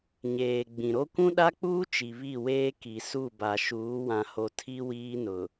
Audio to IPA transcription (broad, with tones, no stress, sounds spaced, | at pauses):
ɲ eː˨ ɡ͡b ĩ˨ ɾ o˦ kʷ ũ˦ ɗ a˦ k͡p uː˦ t͡ʃ i˨ β i˦˨ w eː˦ k i˨ s u˦˨ b a˨ ʃ uː˨˦ w ã˨ h o˨ tʰ i˦ w iː˦ n ʊ˨